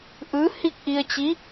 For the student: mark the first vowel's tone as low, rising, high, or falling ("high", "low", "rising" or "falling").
rising